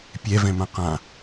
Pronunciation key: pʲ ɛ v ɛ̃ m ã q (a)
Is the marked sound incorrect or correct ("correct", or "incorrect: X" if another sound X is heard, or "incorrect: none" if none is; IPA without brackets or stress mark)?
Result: incorrect: ã